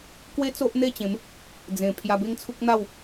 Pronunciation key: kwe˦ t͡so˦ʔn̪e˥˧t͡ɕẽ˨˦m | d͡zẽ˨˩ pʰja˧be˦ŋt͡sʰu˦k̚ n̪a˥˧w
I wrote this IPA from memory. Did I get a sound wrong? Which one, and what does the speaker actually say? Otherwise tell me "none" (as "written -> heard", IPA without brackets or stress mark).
none